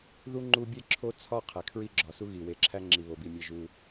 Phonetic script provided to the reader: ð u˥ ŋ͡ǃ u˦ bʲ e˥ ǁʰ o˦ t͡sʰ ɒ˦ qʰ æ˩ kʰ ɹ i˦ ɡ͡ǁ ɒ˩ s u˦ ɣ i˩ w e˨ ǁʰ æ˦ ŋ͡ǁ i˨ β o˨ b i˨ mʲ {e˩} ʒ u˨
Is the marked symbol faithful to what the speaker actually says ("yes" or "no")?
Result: no